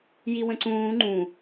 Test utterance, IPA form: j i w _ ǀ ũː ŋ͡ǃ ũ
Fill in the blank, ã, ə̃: ə̃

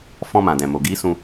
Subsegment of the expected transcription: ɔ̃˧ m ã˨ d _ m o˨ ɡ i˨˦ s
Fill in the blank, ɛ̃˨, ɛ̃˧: ɛ̃˨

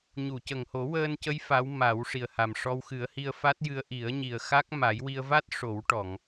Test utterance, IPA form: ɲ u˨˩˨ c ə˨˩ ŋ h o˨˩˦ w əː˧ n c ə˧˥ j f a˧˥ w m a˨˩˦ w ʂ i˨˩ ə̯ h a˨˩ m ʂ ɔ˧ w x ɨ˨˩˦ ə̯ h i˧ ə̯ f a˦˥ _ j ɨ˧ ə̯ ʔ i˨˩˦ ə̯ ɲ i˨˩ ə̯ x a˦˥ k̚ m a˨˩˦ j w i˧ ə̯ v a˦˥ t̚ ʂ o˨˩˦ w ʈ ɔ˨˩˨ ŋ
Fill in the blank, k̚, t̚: t̚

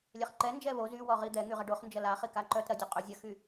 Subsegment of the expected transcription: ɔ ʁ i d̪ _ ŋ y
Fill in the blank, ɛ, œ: ɛ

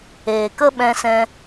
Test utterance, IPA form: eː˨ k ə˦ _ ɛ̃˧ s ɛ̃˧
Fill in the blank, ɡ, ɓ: ɓ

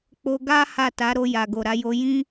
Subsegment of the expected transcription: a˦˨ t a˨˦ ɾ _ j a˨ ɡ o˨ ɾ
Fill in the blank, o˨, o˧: o˧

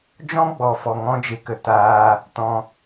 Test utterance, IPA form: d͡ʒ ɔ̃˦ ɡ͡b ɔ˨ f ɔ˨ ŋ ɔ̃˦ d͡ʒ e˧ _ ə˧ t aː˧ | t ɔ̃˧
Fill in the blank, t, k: k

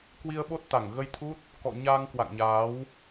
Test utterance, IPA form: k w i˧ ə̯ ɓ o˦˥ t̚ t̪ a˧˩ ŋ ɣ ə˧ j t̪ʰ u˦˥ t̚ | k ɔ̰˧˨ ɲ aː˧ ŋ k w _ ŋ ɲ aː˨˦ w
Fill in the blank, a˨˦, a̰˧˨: a̰˧˨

